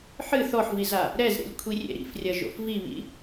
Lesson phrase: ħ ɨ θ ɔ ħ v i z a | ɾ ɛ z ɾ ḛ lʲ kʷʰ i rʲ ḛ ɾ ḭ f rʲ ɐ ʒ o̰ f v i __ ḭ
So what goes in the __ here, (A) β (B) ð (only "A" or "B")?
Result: A